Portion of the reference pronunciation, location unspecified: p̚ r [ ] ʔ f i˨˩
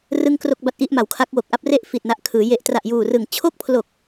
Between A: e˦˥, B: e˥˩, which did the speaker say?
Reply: B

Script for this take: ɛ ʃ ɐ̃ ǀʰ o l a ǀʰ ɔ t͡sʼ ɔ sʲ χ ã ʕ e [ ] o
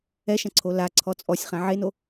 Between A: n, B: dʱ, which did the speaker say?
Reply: A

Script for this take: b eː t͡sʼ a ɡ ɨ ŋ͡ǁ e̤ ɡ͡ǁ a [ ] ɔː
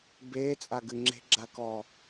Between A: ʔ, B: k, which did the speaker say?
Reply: B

